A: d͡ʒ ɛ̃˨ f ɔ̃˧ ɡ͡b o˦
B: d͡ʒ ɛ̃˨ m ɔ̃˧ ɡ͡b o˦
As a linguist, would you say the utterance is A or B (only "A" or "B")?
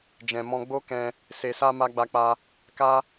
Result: B